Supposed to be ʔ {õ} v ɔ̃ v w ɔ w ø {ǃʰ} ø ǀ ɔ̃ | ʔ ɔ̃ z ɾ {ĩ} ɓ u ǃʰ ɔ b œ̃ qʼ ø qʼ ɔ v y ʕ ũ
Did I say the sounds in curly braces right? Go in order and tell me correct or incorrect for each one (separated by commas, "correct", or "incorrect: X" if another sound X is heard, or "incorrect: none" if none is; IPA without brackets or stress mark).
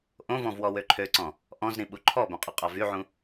correct, correct, correct